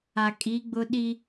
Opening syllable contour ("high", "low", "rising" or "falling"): low